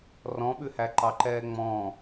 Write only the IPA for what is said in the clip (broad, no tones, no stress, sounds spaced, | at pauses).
r ɔ̃ ɓ ʉ h æ ǃ ɑ ǃ ɛː ŋ͡m ɔ̃